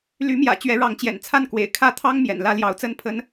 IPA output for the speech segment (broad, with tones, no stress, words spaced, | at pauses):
ly˧˥mjä̰˨˩ t͡ɕɥɛ˧˥ɻɑ˧˥ŋt͡ɕjɛ̰˨˩n t͡sʰa˥˩nkwḛ˨˩ɪ̯ kʰä˥˩t̪ʰɑ˥ŋ mjɛ̰˨˩nlä˥˩ ljɑ˧˥ʊ̯t͡sə˥npʰə˥n